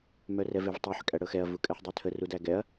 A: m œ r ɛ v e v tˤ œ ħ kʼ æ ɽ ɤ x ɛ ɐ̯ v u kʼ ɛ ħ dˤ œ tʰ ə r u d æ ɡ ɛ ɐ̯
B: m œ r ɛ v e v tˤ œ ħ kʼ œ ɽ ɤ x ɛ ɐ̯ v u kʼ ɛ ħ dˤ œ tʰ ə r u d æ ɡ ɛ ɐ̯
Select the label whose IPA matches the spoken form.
A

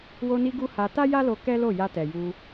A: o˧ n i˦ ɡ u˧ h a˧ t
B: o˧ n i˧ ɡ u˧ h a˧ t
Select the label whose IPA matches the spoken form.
B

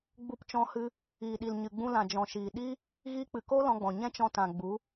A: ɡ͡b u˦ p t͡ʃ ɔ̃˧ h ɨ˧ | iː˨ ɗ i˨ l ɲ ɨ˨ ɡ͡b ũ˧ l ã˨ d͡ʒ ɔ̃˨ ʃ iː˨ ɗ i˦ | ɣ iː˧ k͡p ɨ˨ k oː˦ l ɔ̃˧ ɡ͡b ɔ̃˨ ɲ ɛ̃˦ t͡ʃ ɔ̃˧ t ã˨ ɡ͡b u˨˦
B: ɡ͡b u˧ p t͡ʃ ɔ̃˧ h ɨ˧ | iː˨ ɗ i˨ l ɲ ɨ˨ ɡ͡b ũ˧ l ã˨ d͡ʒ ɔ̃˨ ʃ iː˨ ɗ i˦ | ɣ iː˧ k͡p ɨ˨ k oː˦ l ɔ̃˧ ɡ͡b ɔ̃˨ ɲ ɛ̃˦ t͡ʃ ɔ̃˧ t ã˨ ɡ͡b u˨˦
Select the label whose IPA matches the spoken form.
B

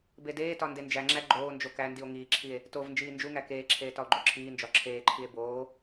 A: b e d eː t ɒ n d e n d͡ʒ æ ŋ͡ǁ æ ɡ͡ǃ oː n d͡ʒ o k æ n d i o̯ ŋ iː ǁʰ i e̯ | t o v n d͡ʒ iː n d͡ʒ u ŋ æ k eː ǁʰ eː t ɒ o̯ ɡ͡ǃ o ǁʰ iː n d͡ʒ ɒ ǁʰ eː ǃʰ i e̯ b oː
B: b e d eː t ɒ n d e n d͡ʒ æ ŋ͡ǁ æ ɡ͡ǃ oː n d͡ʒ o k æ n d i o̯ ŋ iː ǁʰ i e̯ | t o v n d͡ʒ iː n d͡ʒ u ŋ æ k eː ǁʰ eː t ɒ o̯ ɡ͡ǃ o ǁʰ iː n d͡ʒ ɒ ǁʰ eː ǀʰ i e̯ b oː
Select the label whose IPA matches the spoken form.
A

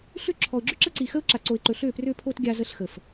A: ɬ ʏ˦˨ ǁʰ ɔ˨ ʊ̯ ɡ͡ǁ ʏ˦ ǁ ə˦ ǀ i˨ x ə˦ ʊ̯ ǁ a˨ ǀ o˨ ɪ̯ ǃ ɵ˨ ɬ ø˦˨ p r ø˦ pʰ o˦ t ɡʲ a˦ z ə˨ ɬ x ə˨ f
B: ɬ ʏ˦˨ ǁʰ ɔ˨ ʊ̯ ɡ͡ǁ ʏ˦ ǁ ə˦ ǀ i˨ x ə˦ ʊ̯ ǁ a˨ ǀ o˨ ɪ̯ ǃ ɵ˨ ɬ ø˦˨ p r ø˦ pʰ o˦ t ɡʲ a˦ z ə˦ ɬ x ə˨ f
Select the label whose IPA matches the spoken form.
B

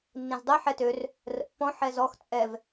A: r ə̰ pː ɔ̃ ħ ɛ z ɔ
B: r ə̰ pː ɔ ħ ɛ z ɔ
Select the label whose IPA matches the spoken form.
A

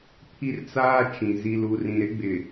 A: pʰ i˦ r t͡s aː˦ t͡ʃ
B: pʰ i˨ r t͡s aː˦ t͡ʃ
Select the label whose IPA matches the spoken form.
A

